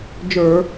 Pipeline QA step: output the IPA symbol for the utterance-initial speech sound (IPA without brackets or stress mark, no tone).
d͡ʒ